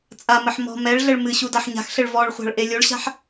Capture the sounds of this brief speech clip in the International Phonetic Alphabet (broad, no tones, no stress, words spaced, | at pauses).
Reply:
t͡sʼamɘħ mɔ̤ mɛɭɮɘɭ mɨɕu daħɲa̤xɬɘɭ vɔɭχʷa̤ɭ ʔelʲoɭɕa̤ħ